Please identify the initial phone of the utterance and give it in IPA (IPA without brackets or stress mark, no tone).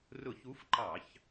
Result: r